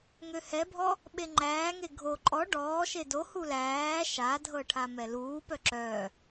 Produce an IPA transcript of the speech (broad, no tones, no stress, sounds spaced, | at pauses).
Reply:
ŋ ø h ɛ bʱ ɔ | ɓ e ŋ͡ǃ æː ŋ e ɡʱ o ǃʼ ɔ ɖ ɔː ʃ e d o h u l æː ʃ a dʱ ɤ ʈʰ a m ɛ l uː p œ ǁ œ